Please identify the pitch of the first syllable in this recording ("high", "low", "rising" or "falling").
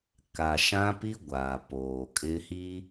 low